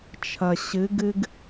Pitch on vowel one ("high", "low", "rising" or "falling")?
low